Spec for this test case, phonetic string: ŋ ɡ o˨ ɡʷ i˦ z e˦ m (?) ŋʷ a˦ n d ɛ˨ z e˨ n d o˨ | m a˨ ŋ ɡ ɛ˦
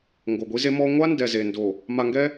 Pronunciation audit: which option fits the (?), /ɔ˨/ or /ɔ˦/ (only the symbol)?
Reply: ɔ˦